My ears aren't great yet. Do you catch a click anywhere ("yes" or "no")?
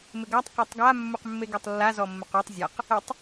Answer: no